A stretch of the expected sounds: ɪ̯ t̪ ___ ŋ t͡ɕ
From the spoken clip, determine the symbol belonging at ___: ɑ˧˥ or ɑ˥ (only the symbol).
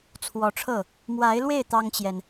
ɑ˥